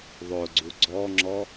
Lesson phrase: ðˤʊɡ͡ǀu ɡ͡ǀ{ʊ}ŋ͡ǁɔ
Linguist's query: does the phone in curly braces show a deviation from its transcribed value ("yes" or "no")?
yes